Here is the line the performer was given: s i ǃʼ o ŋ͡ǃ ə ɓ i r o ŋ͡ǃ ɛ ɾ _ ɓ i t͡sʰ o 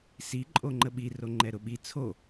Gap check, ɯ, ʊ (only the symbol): ʊ